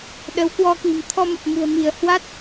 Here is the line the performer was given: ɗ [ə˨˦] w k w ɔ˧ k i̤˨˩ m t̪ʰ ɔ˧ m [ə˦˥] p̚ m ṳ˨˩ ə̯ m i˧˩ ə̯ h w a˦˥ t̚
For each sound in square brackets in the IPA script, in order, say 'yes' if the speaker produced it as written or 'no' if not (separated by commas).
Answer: yes, no